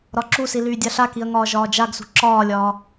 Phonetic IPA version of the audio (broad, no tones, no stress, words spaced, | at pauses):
ɾɒǁusi lyːdʲaɬakiɐ̯ ŋɒːʒɒːd͡ʒaɡsṳ ǁɒːlʲɒː